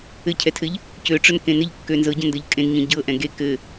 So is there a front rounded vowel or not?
yes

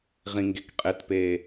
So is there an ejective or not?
yes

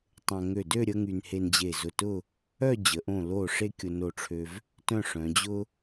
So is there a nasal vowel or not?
yes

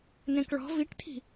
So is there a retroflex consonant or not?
yes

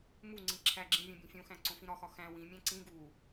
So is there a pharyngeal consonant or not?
no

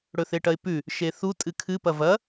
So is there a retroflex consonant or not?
yes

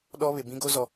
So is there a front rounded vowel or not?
no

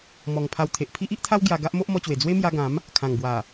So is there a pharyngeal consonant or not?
no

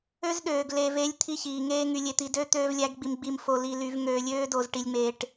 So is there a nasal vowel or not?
no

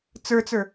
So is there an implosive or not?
no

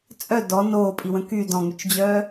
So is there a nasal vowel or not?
yes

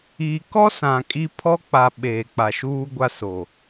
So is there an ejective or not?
yes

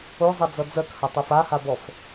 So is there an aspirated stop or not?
no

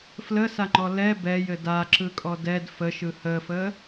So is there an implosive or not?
no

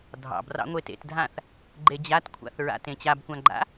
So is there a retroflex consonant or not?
no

